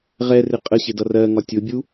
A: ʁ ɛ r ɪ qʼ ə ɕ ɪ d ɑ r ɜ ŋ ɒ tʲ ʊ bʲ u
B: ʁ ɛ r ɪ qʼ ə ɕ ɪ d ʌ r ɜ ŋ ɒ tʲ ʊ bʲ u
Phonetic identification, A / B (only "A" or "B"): B